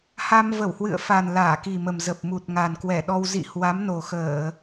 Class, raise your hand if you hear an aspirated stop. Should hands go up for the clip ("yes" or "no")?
no